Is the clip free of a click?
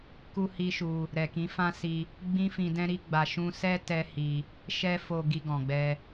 yes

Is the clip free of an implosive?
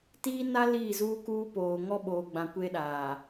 no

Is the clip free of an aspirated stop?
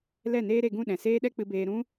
yes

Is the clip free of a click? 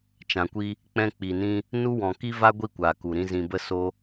yes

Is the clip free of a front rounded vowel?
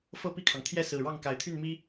no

